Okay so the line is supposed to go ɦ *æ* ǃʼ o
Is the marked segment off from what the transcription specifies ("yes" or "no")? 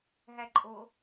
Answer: no